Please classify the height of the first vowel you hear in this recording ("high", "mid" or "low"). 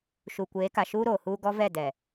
high